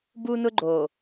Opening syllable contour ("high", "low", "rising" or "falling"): high